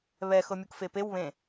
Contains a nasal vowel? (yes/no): yes